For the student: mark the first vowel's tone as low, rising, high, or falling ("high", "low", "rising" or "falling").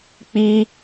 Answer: high